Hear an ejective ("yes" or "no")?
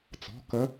no